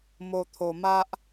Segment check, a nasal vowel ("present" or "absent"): absent